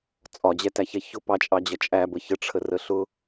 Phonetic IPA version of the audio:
t͡sʼ ɒ d͡ʑ ɛ t æ ç ɛ ç ʊ p ɑ t͡ʃʼ ɑ d͡ʑ ʌ t͡ʃʼ æ b ə ç ə ʈ͡ʂʰ ə r ə ɬ ʊ

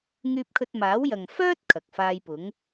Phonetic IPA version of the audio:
ŋ yː˧ p̚ kʰ ɵ˧ t̚ m aː˨˥ w j ɐ˨ ŋ f œː˥ t̚ kʰ ɐ˨ k̚ f aː˧ j p ʊ˨˥ ŋ

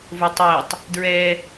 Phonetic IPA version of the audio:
v o tˤ ɜ tˤ | d ɹ ɛ

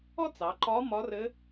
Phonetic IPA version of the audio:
ɔ˥ t͡s ɑ˩˧ ǃ ɒ˧˥ m ɒ˧˥ r ɘ˧˥

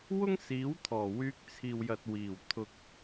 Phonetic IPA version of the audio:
w ʊ˥ ŋ s iː˨˥ w t̪ʰ ɔː˨˩ w yː˧ k̚ t͡sʰ iː˨ w j ɐ˨ t̚ w iː˨˩ w t̪ʰ ʊ˨ k̚

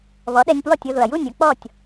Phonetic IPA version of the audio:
β ɔ˩˥ ɗ ɛ˧ nʲ p w ɔ˥˩ tʲ ʊ˧ ð ʊ˩ ɐ̯ j u˥˩ nʲ ʊ˧ k͡p ɔ˥˩ tʲ

